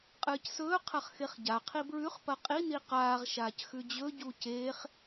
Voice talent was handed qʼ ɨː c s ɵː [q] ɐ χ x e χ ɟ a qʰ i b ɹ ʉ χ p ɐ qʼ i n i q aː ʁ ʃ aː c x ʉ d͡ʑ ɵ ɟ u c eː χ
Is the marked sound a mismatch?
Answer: yes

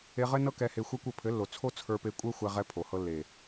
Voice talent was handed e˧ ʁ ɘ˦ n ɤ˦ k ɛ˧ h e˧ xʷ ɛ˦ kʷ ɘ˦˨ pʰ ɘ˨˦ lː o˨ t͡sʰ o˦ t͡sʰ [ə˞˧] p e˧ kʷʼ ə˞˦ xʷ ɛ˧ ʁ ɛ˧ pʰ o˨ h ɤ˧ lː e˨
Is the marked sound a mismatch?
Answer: no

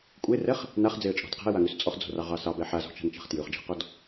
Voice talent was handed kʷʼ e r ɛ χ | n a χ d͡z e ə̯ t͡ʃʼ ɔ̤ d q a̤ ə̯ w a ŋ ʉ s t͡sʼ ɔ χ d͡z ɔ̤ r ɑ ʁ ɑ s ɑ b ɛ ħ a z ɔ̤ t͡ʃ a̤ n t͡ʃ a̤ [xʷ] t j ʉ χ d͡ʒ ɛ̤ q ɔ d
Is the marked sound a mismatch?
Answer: yes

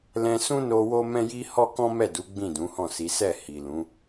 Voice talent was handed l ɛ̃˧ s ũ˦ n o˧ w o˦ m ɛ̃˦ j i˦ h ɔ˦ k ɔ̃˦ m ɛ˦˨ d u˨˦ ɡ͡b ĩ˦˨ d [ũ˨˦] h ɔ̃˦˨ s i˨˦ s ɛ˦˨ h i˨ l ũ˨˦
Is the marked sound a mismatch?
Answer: no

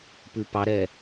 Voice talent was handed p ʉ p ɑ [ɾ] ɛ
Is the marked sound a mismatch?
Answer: no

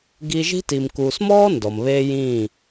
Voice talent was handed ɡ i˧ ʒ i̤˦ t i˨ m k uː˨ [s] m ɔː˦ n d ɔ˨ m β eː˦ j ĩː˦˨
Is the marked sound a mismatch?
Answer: no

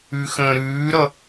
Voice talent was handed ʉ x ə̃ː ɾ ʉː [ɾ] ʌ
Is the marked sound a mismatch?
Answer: no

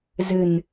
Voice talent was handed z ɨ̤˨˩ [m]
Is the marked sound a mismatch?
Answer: yes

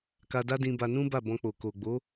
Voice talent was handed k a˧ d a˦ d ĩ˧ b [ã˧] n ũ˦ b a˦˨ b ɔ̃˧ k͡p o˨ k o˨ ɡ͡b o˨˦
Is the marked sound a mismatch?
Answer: yes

